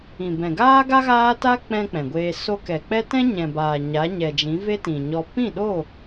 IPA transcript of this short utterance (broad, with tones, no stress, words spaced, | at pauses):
ĩ˨bɛ̃˨ɡaː˦ɡa˦ ɣaː˦ta˦k͡pɛ̃˧ k͡pɛ̃˨ɡʷeː˧ so˧kɛ˨k͡pɛ˦ tɛ̃˦ɲɛ̃˨baː˨ ɲa˨˦ɲɛ˨d͡ʒĩ˨˦ ve˦tĩ˨ɲɔ˧ pĩ˦˨ɗo˦˨